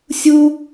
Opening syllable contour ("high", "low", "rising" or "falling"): high